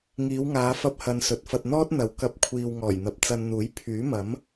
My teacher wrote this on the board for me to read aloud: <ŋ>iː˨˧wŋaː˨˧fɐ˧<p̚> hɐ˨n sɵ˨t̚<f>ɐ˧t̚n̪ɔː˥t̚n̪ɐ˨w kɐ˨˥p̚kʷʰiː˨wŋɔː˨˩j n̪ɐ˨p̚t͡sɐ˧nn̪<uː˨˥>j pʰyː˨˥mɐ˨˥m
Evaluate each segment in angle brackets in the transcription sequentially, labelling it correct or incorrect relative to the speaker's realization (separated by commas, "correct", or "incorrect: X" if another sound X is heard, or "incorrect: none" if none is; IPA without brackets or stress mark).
correct, correct, correct, correct